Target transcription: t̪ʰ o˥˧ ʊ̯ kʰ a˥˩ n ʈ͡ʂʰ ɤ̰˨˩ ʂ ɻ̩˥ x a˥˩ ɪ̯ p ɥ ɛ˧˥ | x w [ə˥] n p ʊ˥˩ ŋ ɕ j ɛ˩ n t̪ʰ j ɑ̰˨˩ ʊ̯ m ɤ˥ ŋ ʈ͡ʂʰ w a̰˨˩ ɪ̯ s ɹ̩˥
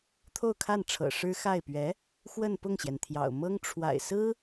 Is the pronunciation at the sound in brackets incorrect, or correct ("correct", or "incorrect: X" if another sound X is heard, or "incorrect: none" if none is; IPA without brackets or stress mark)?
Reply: incorrect: ə˥˧